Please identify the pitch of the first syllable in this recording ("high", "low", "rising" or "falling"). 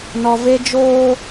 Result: low